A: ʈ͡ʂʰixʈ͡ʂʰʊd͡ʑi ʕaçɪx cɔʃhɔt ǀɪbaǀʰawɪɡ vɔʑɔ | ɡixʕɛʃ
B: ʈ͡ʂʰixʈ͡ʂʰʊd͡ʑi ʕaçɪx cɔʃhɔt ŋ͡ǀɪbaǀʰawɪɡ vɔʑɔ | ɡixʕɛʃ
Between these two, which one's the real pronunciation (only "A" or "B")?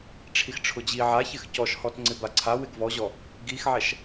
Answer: B